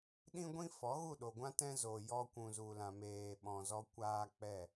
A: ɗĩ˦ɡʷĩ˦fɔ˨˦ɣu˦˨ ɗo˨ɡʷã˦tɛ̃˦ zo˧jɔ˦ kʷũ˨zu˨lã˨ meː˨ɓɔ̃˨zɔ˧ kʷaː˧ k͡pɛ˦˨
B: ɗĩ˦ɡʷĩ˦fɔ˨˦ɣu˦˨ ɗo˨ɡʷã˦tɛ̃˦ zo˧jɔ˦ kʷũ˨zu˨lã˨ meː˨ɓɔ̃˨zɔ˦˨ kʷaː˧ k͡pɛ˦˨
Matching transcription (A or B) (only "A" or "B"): A